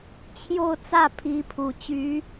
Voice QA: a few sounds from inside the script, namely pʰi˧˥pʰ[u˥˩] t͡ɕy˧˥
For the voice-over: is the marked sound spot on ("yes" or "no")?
no